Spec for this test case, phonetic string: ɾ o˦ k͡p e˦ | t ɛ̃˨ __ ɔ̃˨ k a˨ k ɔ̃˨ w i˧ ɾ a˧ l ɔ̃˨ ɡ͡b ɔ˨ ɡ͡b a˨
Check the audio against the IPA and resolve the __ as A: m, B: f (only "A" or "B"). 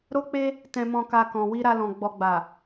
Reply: A